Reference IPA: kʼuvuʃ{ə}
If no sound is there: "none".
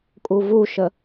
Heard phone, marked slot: ə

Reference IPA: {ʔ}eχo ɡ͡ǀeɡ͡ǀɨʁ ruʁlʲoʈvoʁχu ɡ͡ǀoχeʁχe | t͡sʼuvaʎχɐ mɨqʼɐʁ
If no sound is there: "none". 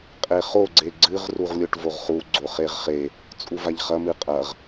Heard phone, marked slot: qʼ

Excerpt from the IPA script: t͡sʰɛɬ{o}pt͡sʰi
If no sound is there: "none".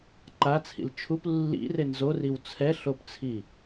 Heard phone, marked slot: o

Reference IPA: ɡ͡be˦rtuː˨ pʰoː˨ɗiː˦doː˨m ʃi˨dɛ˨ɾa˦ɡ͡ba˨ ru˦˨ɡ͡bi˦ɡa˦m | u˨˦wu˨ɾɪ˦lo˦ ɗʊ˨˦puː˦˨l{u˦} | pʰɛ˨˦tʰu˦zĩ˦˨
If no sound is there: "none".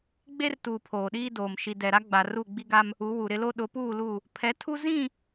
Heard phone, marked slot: u˦˨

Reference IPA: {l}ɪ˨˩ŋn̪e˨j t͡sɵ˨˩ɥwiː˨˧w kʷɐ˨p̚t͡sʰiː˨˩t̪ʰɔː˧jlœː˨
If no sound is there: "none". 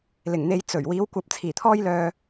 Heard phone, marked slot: l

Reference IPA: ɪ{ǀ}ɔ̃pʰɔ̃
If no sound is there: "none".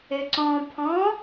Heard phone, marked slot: ǀ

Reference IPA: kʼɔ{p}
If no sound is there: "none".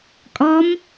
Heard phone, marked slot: m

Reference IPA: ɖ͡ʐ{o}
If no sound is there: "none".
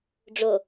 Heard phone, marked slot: o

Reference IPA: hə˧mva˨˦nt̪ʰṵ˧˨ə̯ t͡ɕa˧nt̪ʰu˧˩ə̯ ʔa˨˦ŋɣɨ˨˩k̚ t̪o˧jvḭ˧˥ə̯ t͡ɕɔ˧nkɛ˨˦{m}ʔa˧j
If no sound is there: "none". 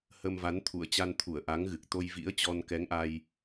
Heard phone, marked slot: ŋ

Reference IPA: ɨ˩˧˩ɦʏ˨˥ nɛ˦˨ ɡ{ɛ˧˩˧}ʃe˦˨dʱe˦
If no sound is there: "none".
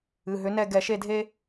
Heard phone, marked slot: ɛ˧˩˧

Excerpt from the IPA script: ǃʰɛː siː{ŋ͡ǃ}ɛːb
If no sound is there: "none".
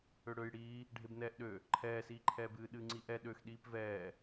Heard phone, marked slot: ǃʰ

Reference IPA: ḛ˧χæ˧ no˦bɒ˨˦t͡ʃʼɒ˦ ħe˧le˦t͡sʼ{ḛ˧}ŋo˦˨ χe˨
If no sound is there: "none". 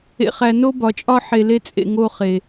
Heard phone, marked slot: ḛ˧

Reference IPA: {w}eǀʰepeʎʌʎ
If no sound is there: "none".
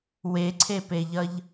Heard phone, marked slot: w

